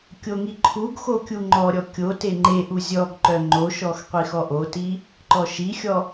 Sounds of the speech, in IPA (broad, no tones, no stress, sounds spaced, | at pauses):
kʲ o ŋ i ǃʰ u ɡ x o kʲ u ŋ͡ǃ ɔ ɾʲ ɔ kʲ o t e ŋ͡ǃ e ʔ u zʲ ɔ ɡ ǃ œ ŋ͡ǃ o ʃ ɔ x qʷ i x ɔ ʔ o t i | ǃ ɔ ʃ i xʲ ɔ